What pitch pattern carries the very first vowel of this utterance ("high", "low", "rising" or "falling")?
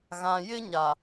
low